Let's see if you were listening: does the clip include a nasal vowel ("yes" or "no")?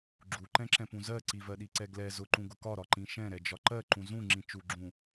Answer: yes